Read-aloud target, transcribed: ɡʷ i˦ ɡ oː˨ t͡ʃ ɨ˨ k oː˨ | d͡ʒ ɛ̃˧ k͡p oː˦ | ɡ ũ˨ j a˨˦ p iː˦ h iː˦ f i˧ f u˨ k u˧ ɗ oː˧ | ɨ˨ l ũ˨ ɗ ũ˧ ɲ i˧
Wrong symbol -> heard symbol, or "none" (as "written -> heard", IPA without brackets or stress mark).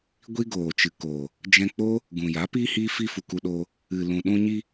none